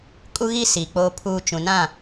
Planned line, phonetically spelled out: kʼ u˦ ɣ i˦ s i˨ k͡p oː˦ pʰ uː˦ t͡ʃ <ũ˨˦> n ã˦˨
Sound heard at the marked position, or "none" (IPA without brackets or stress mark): ũ˨